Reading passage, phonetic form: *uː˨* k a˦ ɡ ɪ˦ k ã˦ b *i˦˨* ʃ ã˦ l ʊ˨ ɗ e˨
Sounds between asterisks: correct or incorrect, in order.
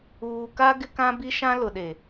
correct, incorrect: i˦

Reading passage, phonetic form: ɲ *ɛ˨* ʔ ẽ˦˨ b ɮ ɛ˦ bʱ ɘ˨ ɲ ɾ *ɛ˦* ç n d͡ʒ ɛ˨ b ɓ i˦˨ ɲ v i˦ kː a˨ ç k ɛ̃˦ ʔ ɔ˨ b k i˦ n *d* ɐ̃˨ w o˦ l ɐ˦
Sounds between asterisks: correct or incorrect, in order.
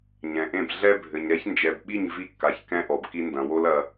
incorrect: ɛ̃˨, correct, correct

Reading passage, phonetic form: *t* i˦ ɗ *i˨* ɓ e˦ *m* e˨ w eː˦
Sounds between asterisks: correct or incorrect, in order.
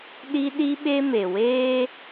incorrect: ɗ, incorrect: i˦, correct

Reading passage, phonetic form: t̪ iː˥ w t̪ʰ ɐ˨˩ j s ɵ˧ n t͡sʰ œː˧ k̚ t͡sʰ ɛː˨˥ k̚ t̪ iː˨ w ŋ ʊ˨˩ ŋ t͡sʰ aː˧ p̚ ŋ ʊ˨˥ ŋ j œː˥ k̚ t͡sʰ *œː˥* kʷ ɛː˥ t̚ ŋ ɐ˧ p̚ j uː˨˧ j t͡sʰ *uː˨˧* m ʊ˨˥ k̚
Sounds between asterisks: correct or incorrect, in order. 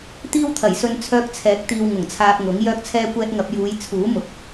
incorrect: ɛː˥, incorrect: uː˨˥

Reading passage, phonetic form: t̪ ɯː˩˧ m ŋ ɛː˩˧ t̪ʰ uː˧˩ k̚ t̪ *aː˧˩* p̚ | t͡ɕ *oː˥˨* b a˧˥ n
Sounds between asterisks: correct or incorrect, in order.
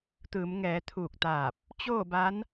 correct, correct

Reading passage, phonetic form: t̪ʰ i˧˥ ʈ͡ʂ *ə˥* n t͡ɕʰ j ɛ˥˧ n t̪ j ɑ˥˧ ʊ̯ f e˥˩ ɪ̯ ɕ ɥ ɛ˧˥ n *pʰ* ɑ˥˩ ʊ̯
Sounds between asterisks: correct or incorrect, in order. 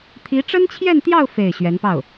correct, incorrect: p

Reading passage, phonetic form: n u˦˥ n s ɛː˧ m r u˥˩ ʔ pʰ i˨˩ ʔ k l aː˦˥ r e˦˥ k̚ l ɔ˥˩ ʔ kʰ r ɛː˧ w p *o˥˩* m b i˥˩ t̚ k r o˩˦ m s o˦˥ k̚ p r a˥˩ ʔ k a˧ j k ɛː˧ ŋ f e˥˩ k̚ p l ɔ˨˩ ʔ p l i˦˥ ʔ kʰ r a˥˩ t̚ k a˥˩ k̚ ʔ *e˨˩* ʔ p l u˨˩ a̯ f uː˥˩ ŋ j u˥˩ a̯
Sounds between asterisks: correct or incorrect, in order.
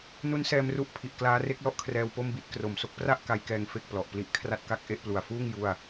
correct, incorrect: e˥˩

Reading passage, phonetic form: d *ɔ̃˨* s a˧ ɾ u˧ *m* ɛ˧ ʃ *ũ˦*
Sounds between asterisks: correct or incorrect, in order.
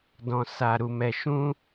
incorrect: ɔ̃˧, correct, correct

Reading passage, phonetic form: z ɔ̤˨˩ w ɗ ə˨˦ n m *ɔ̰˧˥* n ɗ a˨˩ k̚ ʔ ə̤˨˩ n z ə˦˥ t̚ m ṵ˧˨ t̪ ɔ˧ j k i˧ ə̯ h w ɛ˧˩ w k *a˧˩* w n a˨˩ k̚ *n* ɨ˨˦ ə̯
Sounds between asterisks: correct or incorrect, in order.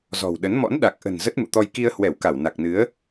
correct, correct, correct

